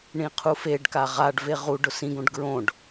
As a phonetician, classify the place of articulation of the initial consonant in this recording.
retroflex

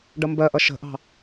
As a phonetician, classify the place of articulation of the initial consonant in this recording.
retroflex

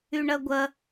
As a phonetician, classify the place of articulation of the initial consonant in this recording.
retroflex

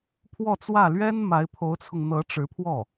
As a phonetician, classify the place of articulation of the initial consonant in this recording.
labial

